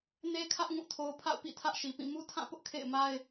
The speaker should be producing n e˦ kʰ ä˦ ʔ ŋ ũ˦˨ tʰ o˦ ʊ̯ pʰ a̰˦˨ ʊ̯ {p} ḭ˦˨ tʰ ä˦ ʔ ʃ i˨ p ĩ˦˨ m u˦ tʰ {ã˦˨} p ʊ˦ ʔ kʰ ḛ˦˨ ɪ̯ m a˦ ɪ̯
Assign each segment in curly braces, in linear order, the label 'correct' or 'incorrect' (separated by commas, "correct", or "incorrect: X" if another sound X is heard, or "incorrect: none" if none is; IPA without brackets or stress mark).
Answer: correct, correct